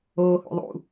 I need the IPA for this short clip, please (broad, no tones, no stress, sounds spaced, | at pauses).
oː h o̰ ðˤ ṵ